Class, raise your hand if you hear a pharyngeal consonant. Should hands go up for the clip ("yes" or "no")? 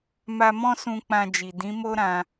no